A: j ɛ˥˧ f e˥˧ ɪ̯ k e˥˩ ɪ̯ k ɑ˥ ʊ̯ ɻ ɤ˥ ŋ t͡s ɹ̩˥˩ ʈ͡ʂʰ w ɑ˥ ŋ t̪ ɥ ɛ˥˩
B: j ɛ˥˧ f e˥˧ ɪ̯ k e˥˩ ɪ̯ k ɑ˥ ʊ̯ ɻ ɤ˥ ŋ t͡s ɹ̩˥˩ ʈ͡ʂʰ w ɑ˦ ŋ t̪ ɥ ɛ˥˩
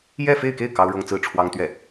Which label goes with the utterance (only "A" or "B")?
A